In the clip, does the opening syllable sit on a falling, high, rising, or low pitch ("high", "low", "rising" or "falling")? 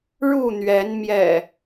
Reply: falling